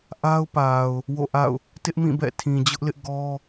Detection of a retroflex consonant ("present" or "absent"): absent